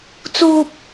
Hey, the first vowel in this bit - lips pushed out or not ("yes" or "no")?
yes